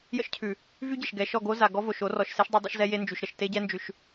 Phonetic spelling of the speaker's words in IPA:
j ə̰˦ ʃ cʰ ʉ˨ | v y˦ ɟ ə˨ ʃ ɡ ɛ˨ ʃ ɔ˦˨ ɡ o˦ z a˨ ɡ ɔ˦ v o˨ ʃ o˦ r ɔ˨ ʃ s e˦ ʃ dˤ o˦ dˤ ḛ˦ ʃ z ɛ˦ j e˦ n d͡ʒ y˨ ʃ ɾ ə˨ ʃ t e˦ ɟ ɛ˦ n d͡ʒ ʉ˨ ʃ

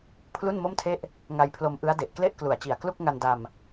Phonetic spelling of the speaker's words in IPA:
pʰ l u˥˩ n m o˥˩ m tʰ e˥˩ ʔ | ŋ a˧ j pʰ l o˧ m ʔ ɯ˦˥ a̯ d e˨˩ ʔ k l e˥˩ ʔ k l u˨˩ a̯ t͡ɕ i˨˩ a̯ k l u˥˩ k̚ ŋ a˧ n d a˧ m

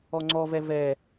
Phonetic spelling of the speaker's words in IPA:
ɔ ŋ͡ǀ ɔ v ɛ v ɛ

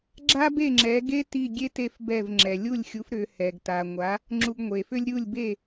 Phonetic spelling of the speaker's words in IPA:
ɡ͡ǁ a˥ b e˥˩ ŋ͡ǁ ɛ˩˥ ɡ e˥ t i˥˩ ɡʲ e˥ t e˥˩ f b ɛ˥˩ v ŋ͡ǁ ɛ˩ lʲ u˥˩ lʲ xʲ u˩˥ f ɾ ʏ˩˥ h ɛ˩ ɡ t a˩ ŋʷ a˩˥ | ŋ͡ǁ u˧ ɡ ŋʷ e˩ f ʏ˥ lʲ ɾʲ u˥˩ lʲ b e˥˩

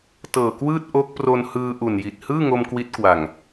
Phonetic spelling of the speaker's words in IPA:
t ɤː˨˩ k w ɯː˥˩ t̚ ʔ o˦˥ k̚ p r o˧ n h ɯː˧ ʔ u˨˩ n j i˨˩ t̚ h ɯː˥˩ ŋ o˧ m k w i˦˥ t̚ k w a˨˩ ŋ

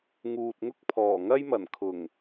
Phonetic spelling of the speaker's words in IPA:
ŋ uː˨ t̚ ŋ ʊ˥ k̚ pʰ ɔː˨˩ ŋ ɐ˥ j m ɐ˨˩ n kʰ ʊ˨˩ ŋ

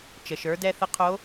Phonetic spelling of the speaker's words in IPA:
t͡ʃ ə˩ ʃ ə˞˩˧ d ɛ˧ θ ə˧˥ qʰ o˧˥

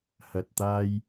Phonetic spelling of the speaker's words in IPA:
h ɐ˧ t̚ t̪ aː˥ j

